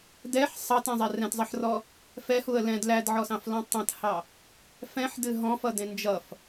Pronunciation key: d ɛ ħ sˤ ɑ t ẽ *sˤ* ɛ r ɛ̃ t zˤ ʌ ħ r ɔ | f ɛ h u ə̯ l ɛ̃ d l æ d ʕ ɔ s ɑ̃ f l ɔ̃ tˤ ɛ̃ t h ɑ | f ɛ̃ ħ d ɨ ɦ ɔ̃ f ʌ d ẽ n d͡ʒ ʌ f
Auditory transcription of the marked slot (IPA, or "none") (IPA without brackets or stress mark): zˤ